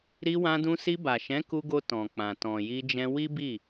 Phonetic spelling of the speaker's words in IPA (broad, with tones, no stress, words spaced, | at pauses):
ɾi˧wã˧dũ˧si˧ ba˨ʃɛ̃˨˦ ku˧ɡo˧ tɔ̃˨k͡pã˨ tɔ̃˨ji˧d͡ʒɛ̃˧ wi˦bi˦˨